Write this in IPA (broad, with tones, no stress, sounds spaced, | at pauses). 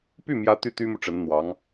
p y˥˩ m j ä˧˥ t̪ y˥˩ t̪ y˥ m u˨ ʈ͡ʂ ə˧˥ n n̪ w ɑ˧˥ ŋ